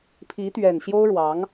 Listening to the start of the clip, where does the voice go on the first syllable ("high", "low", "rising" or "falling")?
rising